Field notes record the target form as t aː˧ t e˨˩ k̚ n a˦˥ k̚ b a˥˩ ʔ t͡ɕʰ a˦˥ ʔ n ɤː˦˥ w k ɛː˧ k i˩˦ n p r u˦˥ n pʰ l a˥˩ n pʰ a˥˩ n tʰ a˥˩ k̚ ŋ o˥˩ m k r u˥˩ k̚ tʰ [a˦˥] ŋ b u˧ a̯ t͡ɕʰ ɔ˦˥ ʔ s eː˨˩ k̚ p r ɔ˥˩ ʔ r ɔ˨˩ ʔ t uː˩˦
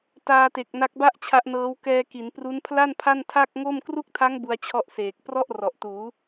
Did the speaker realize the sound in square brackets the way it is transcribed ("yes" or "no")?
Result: yes